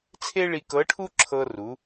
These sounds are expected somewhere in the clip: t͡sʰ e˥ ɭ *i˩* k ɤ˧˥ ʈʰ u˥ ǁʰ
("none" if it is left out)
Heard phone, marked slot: i˧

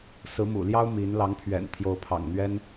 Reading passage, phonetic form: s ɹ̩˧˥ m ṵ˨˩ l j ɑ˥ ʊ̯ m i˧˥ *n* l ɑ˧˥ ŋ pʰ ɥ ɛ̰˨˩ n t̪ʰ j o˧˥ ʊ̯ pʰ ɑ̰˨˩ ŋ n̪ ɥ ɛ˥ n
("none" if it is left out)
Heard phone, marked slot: n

